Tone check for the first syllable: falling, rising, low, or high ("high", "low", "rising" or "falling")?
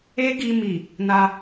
high